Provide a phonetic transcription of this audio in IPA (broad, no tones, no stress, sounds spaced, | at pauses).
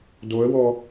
d o ə̯ w ɔ